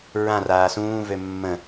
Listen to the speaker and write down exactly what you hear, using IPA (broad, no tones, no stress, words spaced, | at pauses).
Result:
ɹãraː sũːvø mːə̃